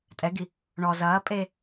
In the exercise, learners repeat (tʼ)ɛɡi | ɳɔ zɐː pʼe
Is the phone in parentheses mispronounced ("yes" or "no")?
no